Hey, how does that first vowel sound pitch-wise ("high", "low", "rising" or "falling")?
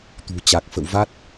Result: low